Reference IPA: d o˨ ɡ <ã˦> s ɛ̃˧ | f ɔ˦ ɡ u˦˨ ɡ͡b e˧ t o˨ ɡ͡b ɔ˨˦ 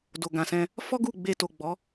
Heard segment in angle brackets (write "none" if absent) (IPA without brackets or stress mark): ã˨